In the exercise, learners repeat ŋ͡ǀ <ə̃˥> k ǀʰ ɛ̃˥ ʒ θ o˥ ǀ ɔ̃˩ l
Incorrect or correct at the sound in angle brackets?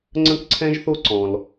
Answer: correct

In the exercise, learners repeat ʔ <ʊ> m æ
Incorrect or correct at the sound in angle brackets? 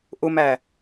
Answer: correct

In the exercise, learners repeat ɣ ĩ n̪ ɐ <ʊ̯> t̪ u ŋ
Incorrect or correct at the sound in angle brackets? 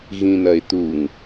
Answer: incorrect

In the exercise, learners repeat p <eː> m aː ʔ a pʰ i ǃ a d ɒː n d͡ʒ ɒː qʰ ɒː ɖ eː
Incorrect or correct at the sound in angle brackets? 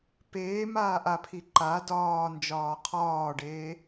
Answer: correct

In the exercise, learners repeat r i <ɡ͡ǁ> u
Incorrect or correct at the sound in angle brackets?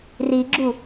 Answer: correct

